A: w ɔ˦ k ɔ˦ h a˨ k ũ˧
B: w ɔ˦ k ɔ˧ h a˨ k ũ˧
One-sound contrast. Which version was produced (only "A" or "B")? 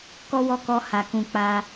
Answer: B